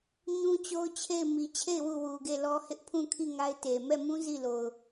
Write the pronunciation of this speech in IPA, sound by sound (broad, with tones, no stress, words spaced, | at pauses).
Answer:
ɲũ˦t͡ɕo˦ʊ̯t͡ɕʰe˦˨ɪ̯ mi˨t͡ɕʰe˦˨ɪ̯ wu˦˨wu˨ɡe˦˨lɔ˦ hɪ˦ʔpʰũ˦˨kʰi˦˨ ŋa˦ɪ̯te˨ mɛ˦˨mũ˦ zi˦˨lo˨ʊ̯